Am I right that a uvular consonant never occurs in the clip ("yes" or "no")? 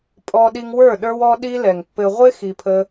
no